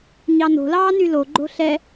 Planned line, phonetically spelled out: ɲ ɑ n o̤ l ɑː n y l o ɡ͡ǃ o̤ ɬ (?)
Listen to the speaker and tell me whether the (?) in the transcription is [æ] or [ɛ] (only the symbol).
ɛ